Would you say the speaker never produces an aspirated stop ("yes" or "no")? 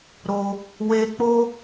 yes